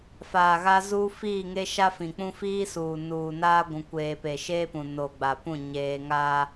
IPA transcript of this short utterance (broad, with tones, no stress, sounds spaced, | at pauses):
f aː˨ ɣ a˦ z uː˦ f iː˦˨ ŋ e˦ ʃ a˦ f ĩ˨ k͡p ũ˦ f iː˦ s uː˨ n uː˨ n aː˦ ɡʷ ũ˨ kʷ eː˨ p e˨ ʃ eː˦ p ũ˨ n o˨ ɡ͡b a˨ p ũ˦˨ ɲ eː˦ ŋ aː˦